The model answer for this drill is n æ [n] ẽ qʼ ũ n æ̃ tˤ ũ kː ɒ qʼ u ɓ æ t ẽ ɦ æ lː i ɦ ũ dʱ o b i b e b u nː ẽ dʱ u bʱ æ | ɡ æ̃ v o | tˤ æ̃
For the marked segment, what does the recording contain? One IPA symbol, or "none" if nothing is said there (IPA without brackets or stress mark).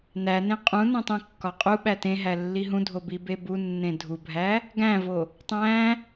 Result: n